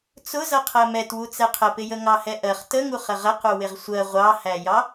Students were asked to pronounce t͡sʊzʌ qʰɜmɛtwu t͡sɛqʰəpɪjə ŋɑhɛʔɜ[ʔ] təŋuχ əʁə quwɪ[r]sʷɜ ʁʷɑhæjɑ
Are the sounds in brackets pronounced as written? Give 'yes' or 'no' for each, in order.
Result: no, no

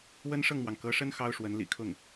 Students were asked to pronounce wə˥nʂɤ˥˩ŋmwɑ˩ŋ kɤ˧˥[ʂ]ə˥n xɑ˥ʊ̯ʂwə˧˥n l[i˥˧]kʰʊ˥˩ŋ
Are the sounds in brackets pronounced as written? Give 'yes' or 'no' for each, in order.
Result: yes, no

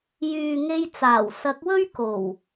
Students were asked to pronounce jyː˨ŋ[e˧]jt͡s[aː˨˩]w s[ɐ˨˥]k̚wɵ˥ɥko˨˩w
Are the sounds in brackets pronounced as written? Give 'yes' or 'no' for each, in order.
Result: yes, yes, yes

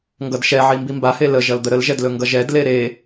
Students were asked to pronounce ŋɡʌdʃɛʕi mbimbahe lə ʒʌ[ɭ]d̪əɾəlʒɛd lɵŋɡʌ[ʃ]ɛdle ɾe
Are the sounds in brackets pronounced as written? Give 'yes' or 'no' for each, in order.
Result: no, no

